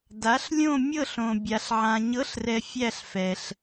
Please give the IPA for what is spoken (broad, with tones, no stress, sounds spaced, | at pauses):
d a˨˥ ɬ lʲ õ˥˧ mʲ ɤ˥˧ ɬ õ˨ bʲ a˨ ɬ ʕ ã˨ ɲ ɤ˨˥ ɬ r ɛ˨ fʲ æ˥˧ ɬ f ɛ˨ ɬ